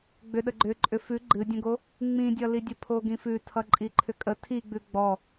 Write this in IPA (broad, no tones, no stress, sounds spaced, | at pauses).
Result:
ɡ͡b ʏ ɗ ə ɡ͡ǃ ʏ ǃʼ ʏ f ʉ ɡ͡ǃ ɨ dʲ ə̃ ɡ o | ŋ͡m ĩ dʲ ʌ l i dʲ ə pʰ o ɡ ĩ f ʉ tʰ ʌ ǃʼ i ǃʰ ʏ kʼ ə tʰ i ɡ͡b ʉ ɡ͡b ɔ